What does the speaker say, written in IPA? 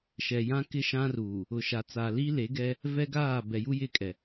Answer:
ʃɛ˨ jã˦kɪ˦ʃã˦ruː˨ | ʊ˨ʃa˨t͡sa˨ li˦le˨˦ɡɛ˦ | vɛ˦ɡaː˦˨ bɛ˨ju˦jɪ˦˨kʼɛ˨

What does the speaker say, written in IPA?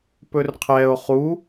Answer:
pɵrqʰɛo̯ χu

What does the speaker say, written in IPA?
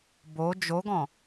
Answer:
bo d͡ʒoɡɔ̃

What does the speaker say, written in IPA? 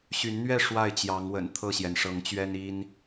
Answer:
ɕy˨˦nn̪ɥɛ˥˨ ʂwa˥˨ɪ̯t͡ɕjɑ˨˦ŋwə̰˨˩n t̪ʰɤ˥˨ɕjɛ˩nʂɤ˨˦ŋt͡ɕɥɛ˦n i˦n

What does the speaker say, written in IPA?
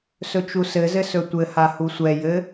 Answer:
sɵt͡ʃusɘzɘ sɵtʷɘha husʷɛjɘ

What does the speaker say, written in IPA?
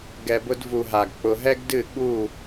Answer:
ɡɛ˨bʊ˧dvu˨ɦa˨ɡ k͡pʊ˧ ɦɛ˦ɡdɨ˦˨ ɠu˦˨

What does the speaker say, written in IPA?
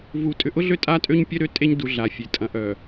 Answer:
vu˨ tʼʏ˨ʔʊ˦ɮø˦ tʼa˦tʼø˦ɲpʲœ˦ɾø˦ tʼe˦ɲdu˨ ɮa˨fʲe˨ tʼɐ̃˨ʔœ˨

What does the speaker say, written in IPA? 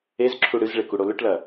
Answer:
ezǁʰu ɽɨzɭek uɽolɵʈlɐ

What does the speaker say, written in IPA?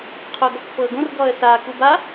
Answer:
qʰoɡɔkfɤɡõr ɡɔə̯sa kuba

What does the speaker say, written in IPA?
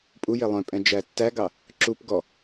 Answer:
pʼuje lˠœ̃pʼɛ̃ d͡ʒætːæɡɑ | ǁup ɡɔ

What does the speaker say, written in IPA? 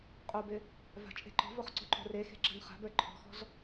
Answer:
qʼobɪ | va̤t͡ʃʼe̤ǃɔ̤voχ ǀo̤ǃo̤rexe̤ ǁa̤nχa̤bə˞ ǃʰɔ̤xɔ̤z

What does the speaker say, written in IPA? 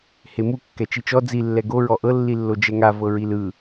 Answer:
hemu kːɛt͡ʃit͡ʃɔ d͡zi lːɛɡo ɹɔʔɤ lːilːod͡ʒɛŋa vɤɹilɯ

